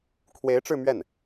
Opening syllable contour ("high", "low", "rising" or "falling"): rising